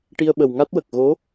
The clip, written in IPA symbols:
ʈ i˧ ə̯ ɓ ə˨˩ w ŋ a˦˥ t̚ w ə˨˩ k̚ ɣ o˧˥

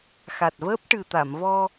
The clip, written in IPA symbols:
x a˨˩ t̚ v əː˦˥ p̚ ʈ ɨ˨˩ t̪ a˨˩˨ m v ɔ˧

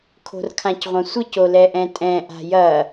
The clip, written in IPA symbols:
kʰ o̤ r kʰ ã c ʁʷ ɐ̃ sʷ ɘ c o l ɛ ʔ ɛ̃ tʼ ɛ̃ ʔ a̤ j ɐ

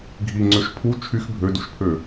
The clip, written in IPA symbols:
ɡʱ i ŋ͡ǀ ø ʃ pʰ u t͡ʃʰ y x bʱ ø d u ʃ pʰ ø

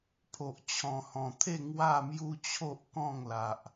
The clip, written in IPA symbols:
pʰ o˨ ʔ t͡ɕʰ ɔ̃˨˩ h ɔ̃˨˩ t̪ʰ e˥˧ ŋ w a˥˧ m j u˦ t͡ɕʰ o˦ ʔ k ɔ̃˥˧ ŋ l a˨ ʔ

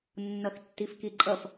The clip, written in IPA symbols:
nː ʌ x tː i f k i ǃʼ ʌ f

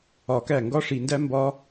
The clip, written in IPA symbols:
ɒ˧ k æ˦˨ ŋ ɡ ɒ˦ ʂ i˧ n d æ˦ m b ɒ˦

